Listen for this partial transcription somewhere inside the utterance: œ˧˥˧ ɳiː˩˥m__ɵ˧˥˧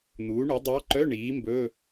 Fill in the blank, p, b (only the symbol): b